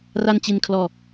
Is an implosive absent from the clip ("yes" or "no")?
yes